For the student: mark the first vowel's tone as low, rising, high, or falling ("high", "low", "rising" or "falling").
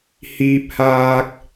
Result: low